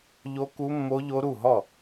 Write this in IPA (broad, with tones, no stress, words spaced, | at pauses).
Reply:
ʎo˦˥ku˦˥mːo˦˥ʎo˦˥ ɾu˥˩ɦɔ˥˩